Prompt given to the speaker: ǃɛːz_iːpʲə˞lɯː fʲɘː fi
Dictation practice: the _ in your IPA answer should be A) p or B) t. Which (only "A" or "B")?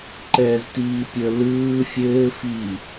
B